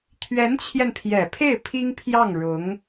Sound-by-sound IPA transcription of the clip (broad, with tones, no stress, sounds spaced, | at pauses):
t̪ʰ ɥ ɛ˧˥ n t͡ɕʰ j ɛ˧ n pʰ j ɛ˨˩ pʰ e˥˩ ɪ̯ pʰ i˥ ŋ pʰ j ɑ˥˩ ŋ ɻ ʊ˧˥ ŋ